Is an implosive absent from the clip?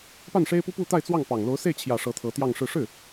yes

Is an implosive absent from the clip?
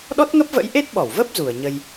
no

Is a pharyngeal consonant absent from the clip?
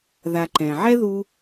no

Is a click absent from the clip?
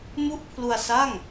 yes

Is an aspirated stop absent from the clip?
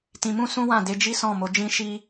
yes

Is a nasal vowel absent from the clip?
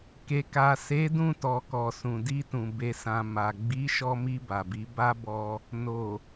no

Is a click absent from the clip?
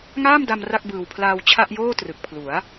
yes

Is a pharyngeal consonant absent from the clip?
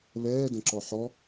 no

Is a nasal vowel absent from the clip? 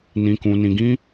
no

